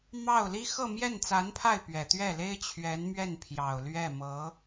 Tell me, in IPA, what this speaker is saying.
mɑ˥˩ʊ̯li˥ xɤ˥˧mjɛ˥˩nt͡sa˧˥npʰa˥˩ɪ̯ pɥɛ˨˩t̪ɥɛ˥˩le˥ɪ̯ t͡ɕʰɥɛ˧˥nmɥɛ˥˩n pʰjɑ˨˩ʊ̯lɥɛ˥˩mɤ˧˥

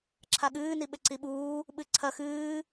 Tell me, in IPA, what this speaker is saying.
ǁʰaɠɨː niɓɘǀiɓuː | ɓɨǀʰɐ xɨː

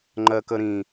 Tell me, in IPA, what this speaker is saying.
ŋ͡ǃɜkəɾĩ

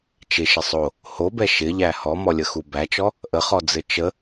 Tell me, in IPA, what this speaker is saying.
t͡ʃɪʃɪ sˤo | hobɛ ʃɪʎæ hɔmɔlʲəxu bæt͡ʃɔ | ʔəχɔd͡zɘ t͡ʃə

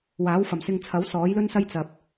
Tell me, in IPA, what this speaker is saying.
waː˨˥wfɐ˨˩msɪ˧ŋt͡sʰɐ˨˥w sɔː˨˥jlɵ˥nsɐ˥j t͡sɐ˨p̚

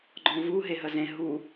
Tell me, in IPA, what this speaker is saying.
ɡ͡ǃɔ̃vu ɦeɦəzẽ ɦu

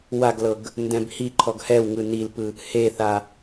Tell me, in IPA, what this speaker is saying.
waɡlɤɡ | ndɛ̃bhiǃʰɔɡ hɛwŋɯ nilpɯ | heθa

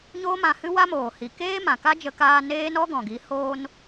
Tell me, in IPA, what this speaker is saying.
ɲoː˦mã˧hɨ˦ wa˦moː˨hi˨ keː˦ mã˨ka˦d͡ʒə˧kaː˧ neː˦nɔ˦ɡɔ̃˨ɡi˨˦ hoː˦n

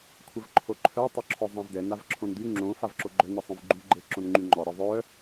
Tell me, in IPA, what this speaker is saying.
kʷʰəvǃʰoǃʰœ tˤœǁʰɔzˤãvdɛ navǁʰõndy ŋ͡ǁõ favǁoɡ͡ǃœ nisˤõvɡ͡ǃy ɡ͡ǃeǁõnŋ͡ǃyŋ͡ǃɔ ɾəðˤœ

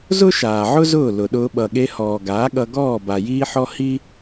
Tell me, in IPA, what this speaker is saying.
zʊ˦ʃaː˨ʕʊ˦ zʊː˦˨ lʊ˨ɗʊː˧ ɓʌ˨ɠe˧hɔː˨ ɡaː˨˦ɠʌ˧ ɡɔː˦˨ba˨ jiː˦ħɔ˦ hi˦

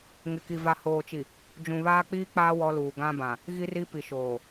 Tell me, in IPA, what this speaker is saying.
ŋɪ˨ki˨ va˨hoː˨t͡ʃi˨ | d͡ʒũ˨βaː˦k͡piː˦ k͡paː˦ wɔ˦luː˨ ɡã˦bã˨ | ɣi˦ri˦ pi˨ʃoː˨

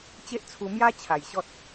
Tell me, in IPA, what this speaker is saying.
t͡ɕe˦ʔt͡sʰu˧mja˦t͡ɕʰa˨˩j ɕɔ˦t̚

